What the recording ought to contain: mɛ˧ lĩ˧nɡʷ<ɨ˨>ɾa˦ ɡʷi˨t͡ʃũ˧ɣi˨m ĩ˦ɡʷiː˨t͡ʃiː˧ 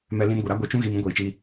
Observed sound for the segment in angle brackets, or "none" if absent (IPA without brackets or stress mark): ɨ˨